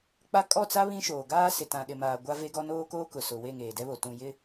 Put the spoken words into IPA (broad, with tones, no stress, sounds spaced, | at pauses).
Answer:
k͡p a˦ kʼ ɔ˦˨ t͡s a˦ β ĩ˦ ʃ oː˨ ɡ aː˦ s ɪ˨ t ã˨ ɗ ɪ˨ m aː˨ ɡʷ a˦ v e˦ ɡ ɔ˦ n oː˦ k oː˦ k ʊ˨ s ʊ˨ w e˦˨ ŋ eː˨ d ɛ˦ β o˨ t ũ˨ j ɪ˦